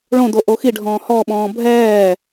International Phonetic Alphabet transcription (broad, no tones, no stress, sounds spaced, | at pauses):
ɭ õ d o ʔ o x i ɖʱ ɔ̃ː h ɔ ɓ ɔ̃ː bʱ ɛː